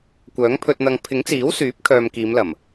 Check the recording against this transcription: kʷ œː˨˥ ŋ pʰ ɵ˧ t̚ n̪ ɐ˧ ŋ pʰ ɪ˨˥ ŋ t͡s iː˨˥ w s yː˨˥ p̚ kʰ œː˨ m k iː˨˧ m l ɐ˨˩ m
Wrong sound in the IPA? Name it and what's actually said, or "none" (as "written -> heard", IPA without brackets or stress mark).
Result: none